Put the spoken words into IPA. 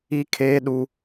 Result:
i˦kʰeː˦ɗu˦

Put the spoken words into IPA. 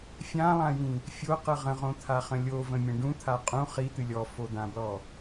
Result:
fʲãlˠãjĩ | fʲoqɨ ʁə̃ʁõt̪ʰaχə̃ lʲovə̃mʲə̃ ɖũt̪ʰa qʼũ χit̪ɨ lʲɔfod̪ãblɔ

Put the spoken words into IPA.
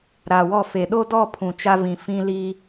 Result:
ɾa˨wɔ˦˨fe˨ ɗo˦dɔ˦˨ pʰũ˨t͡ʃa˦vĩ˨ fĩ˦li˦

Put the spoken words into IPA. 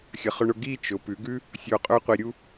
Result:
xʲə˩˧ χɵ˧ɳʊ˧ ɡi˥˧ t͡ʃʊ˩˧pʉ˩˧ɡʉ˥ | sʲo˧˩qʼø˥qʷi˧ɾʲu˥

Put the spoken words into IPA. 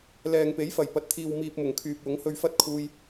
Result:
lɛː˨ŋpe˨˥jfɐ˨˩j pɐ˨t̚t̪ʰiː˨wmiː˨p̚ mʊ˨˩ŋkʰyː˨p̚wʊ˨˥ŋ hɵ˧ɥfɐ˥t̚ kʰuː˧j

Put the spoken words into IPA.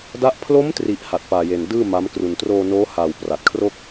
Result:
da˦˥ʔ pʰlo˦˥mtri˨˩ʔ ha˨˩t̚paː˨˩je˨˩n dɯː˥˩ma˦˥mkru˧n troː˧noː˦˥ haː˨˩wpra˨˩t̚kʰro˥˩k̚

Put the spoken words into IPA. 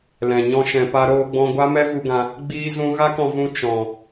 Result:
lɛ̃˨ɲɔ̃˦ʃɛ̃˧pa˦ ɾoː˦ɡ͡bɔ̃˦ ɡʷa˦mɛ˦vu˧ɡã˧ | ɡ͡biː˦zũ˦ ɣa˦kɔ̃˧ vũ˦ t͡ʃɔ̃˨

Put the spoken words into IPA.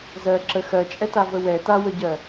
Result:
zɜ ǁə xɜt͡ʃʼɛta vəwɛ tawəɟɜ

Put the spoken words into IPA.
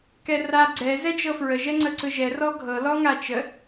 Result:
kɛra ɡ͡ǀɛ zɛd͡ʒɤfɹə ʒɛŋ͡ǀəǀɯʒɛ rɔɡʱɤ lɔŋat͡ʃə

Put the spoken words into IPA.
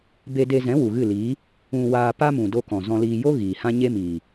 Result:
be˧ de˧zɛ̃˨˦ wu˨ɣɨ˦˨liː˨˦ | ũ˧ waː˧pa˦mũ˨ do˧ kɔ̃˨zɔ̃˧liː˧ jo˦ ɣiː˨hã˦ ɲe˦miː˨

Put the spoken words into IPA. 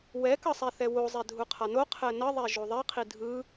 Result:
wɛkʌsˤɛ θɛwozˤɛ dʱuqʰano qʰɛnʌðˤɛ ʒoðˤɛqʰi dʱɯ

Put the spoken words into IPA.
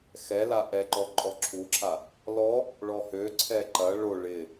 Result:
xɛla ʔɛǃɔ ǃʼɔǁʰuǁʰa | lɔ | ɭɔhø ǀʰɛǃɐ ɭo ɭɪ

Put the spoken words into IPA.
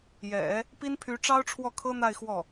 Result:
jɛ̰˨˩˦ | pi˥npʰy˧˥ ʈ͡ʂɑ˥ʊ̯ʈ͡ʂʰwɔ˥˩kʰɤ˥n̪a˥˧ɪ̯ xwɔ˥˩

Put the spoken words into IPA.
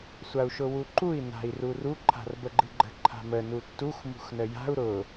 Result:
sʷau̯ʃʊwuǃui̯ na̤i̯ruru ǃʰa̤rbəɡ͡ǃɨɡ͡ǃə̤ ǃʰa̤mə nutːux mṳxnəja̤u̯ ɾʊ

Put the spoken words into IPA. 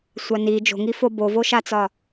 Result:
sʷani d͡ʒo̤ŋifo bovoʃat͡sɒ

